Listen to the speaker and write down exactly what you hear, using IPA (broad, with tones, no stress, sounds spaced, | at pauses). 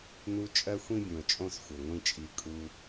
n u˦ t͡ʃʼ ɜ˦ xʷ ĩ˦ bʲ ũ˨ ə̯ t͡ʃʼ õ˦˨ s xʷ ɘ˨ ŋʷ ĩ˦ t͡ʃʼ i˧ kʼ u˧